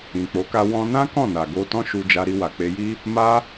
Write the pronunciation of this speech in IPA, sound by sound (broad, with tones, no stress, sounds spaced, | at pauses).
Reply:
ĩ˨ k͡p o˨˦ k a˧ w ɔ̃˧ n ã˦ k ɔ̃˦˨ n a˨ ɡ o˧ t ɔ̃˦ ʃ u˧ d͡ʒ a˧ ɾ i˧ w a˨ k͡p e˧ j i˦ | m a˦